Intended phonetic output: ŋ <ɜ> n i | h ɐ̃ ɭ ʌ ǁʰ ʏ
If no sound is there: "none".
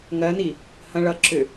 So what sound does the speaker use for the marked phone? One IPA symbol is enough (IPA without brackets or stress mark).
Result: ɜ